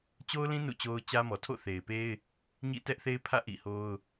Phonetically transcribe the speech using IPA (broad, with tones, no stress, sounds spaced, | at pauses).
t͡ɕ o˦ ʊ̯ l ĩ˦ n ṵ˦˨ t͡ɕ o˦ ʊ̯ t͡ɕ ä˦ m ɔ˨ tʰ o̰˦˨ θ e˨ ɪ̯ p e˦ ɪ̯ | ɲ ḭ˦˨ t ɛ˦ ʔ θ e˦ ɪ̯ pʰ ä̰˦˨ ʔ ḭ˦˨ h o˦ ʊ̯